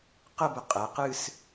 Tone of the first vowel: falling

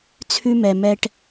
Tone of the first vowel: high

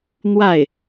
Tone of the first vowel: falling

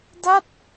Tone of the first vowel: falling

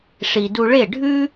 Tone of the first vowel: low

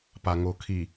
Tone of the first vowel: low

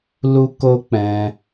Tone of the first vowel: high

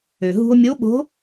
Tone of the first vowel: low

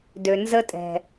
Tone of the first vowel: low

